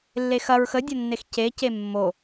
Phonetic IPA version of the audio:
lː e x ɐ ɹ x ə dʲ ɐ nː e x c e c e mː o

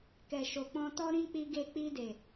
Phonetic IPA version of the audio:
k ɛ˨ ʃ o˨ k͡p ɔ̃˧ t ɔ˦ ɾ ĩ˦ k͡p i˧ ɡ e˧ k͡p i˧ d e˨

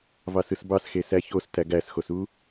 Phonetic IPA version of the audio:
v ɑ s ɯ s b ɑ s x e s æ ç o s t æ ɡ æ s x o s u

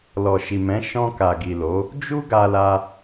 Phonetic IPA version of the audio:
l ɔ˨ ʃ i˨ m ɛ̃˨˦ ʃ ɔ̃˧ k a˨ ɡ i˨ l o˨˦ | d͡ʒ u˦ ɡ a˧ l a˧

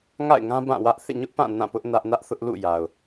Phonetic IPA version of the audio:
ŋ a̰˦˨ ɪ̯ ŋ ã˦ b ã˦˨ w ä˦ ʔ θ ḛ˦˨ ɲ ʊ˦ ʔ p ã˦˨ n ã˦˨ p ʊ˦ ʔ n ä˦ ʔ n ä˦ ʔ θ ʊ˦ ʔ l ṵ˦˨ j a˨ ʊ̯

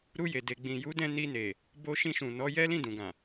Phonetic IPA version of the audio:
ɾ u˧ j e˨ d e˨ ɡ͡b ĩ˨ j u˨˦ d ɛ̃˧ n i˧ n e˨ | b o˧ ʃ ĩ˧ ʃ ũ˨ n ɔ˨˦ j ɛ˦ l ĩ˦˨ d ũ˨ ɡ ã˨

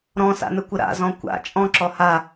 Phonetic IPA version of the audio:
ɾ ɔ̃ s a̰ n ə kʷ ə ɾ a̰ z ɔ̃ kʷ a̰ t͡ʃʼ ɔ̃ ǁ ɔ h a

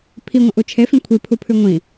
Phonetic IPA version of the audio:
pʰ i ŋʷ ɐ̃ ʔ u t͡ʃʰ e f ĩ kʷʰ i pʰ u pʰ ʉ ŋʷ ĩ

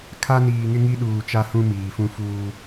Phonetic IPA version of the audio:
kʰ a˦ n iː˨ ŋ ɪ˦ ŋ i˦ ɗ uː˨ t͡ʃ a˦ h ũ˦ m iː˨ f ũ˦ f uː˦

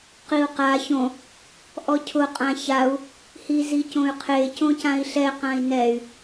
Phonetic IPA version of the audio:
q i u̯ q a ç õ | ʔ ɔ cʰ ʊ qʼ ã ç a u̯ | h i z i c õ y̯ qʰ e c õ c ã i̯ ɬ ɛ q ã i̯ n ɛ y̯

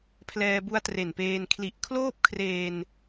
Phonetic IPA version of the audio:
pʰ l ɛː˧ b u˦˥ a̯ t r e˨˩ n p eː˧ n kʰ l i˨˩ ʔ kʰ l oː˥˩ p̚ kʰ r eː˧ n

